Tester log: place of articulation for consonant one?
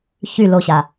palatal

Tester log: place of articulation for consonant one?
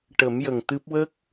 retroflex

